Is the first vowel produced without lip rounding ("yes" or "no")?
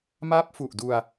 yes